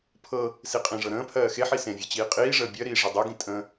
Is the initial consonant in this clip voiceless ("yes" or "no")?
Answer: yes